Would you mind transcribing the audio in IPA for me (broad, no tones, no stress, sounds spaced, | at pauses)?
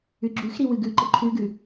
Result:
ʉ ɡ͡ǁ ʉ x ɾ i w ɨ ɡ ʉ ǃ ɘ ǃʰ ʉ ɡ ʉ